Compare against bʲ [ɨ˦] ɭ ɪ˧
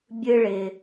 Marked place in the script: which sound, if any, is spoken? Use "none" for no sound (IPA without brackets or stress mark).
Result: ɨ˦